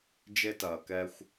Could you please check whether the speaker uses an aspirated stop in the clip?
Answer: no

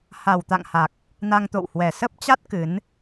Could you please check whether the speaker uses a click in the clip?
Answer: no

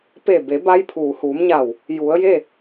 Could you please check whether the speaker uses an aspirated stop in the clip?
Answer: yes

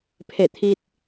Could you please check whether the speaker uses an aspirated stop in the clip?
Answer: yes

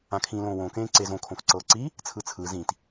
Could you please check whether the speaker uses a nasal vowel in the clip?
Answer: yes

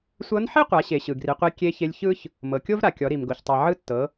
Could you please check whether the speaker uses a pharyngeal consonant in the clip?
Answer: yes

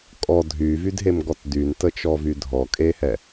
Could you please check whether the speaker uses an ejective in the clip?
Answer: yes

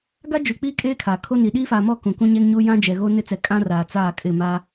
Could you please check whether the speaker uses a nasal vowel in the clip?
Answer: yes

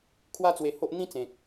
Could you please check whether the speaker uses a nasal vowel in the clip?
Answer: yes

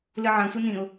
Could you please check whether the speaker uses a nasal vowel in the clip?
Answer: yes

